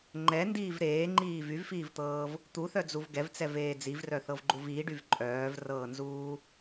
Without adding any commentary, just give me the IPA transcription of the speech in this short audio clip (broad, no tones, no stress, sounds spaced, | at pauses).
ŋ͡ǃ ɛ n d iː v ɾ eː ŋ͡ǃ iː v y v f iː v t̪ ɤː v | t̪ u θ œ d͡z u v ɡ ɛ v t͡s ɛ v eː d͡z i v r œ θ ɤ v ɡ͡ǃ u v iː ɖ y v ǃʼ œː v r ɤː n z uː